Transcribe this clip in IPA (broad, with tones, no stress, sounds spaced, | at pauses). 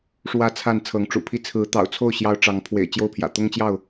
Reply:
ʂ w ä˥˨ t͡sʰ a˥˨ n t͡sʰ ɤ˨˦ ŋ ʈ͡ʂ ṵ˨˩ pʰ i˦ t͡sʰ ɹ̩˨˦ t̪ ɑ̰˨˩ ʊ̯ t͡sʰ o˥˨ ʊ̯ ɕ j ɑ˦ ʊ̯ ʈ͡ʂ ɑ˨˦ ŋ pʰ w ḛ˨˩ ɪ̯ t͡ɕ j o˥˨ ʊ̯ pʰ j ä̰˨˩ t̪ ʊ˦ ŋ t͡ɕ j ɑ˥˨ ʊ̯